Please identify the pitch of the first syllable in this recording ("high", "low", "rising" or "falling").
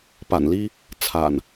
low